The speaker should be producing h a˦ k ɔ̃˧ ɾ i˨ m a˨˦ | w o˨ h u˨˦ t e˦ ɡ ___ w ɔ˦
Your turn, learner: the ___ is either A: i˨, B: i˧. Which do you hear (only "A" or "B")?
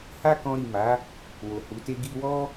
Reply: B